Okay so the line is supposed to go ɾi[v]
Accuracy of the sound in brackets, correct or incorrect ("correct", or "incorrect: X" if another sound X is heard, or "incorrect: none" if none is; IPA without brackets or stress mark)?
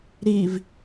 correct